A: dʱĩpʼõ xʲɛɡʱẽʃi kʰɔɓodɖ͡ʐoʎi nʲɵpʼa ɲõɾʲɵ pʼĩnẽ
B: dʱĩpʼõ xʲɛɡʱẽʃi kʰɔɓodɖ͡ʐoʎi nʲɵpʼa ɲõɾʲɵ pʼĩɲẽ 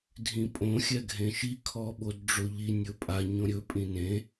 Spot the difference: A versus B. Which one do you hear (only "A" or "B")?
A